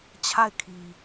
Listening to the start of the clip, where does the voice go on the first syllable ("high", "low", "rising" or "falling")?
falling